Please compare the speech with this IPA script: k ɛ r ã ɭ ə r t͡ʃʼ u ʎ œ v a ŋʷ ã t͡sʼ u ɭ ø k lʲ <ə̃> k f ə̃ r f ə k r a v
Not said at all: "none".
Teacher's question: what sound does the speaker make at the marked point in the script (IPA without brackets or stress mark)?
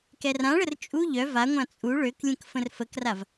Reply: ə̃